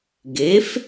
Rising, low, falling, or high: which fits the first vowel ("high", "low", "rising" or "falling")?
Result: rising